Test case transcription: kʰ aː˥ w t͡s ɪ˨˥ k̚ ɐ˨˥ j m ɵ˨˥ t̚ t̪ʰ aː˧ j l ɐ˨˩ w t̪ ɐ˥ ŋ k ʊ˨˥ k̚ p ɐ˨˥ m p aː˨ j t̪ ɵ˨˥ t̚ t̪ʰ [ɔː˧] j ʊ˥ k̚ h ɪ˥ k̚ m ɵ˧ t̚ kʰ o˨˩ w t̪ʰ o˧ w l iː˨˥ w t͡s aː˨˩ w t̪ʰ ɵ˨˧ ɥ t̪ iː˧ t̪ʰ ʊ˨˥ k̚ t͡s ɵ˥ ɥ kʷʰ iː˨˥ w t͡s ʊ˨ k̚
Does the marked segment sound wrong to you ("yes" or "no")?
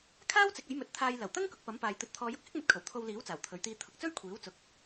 no